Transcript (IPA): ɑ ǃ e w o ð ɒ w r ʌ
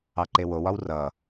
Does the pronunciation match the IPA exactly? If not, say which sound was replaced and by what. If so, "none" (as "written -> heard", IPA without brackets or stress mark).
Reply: ð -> w